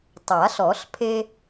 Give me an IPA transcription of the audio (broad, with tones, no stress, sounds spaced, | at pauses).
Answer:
tˤ a˨˩˦ ɬ ɔ˨˩˦ ɬ pʰ e˦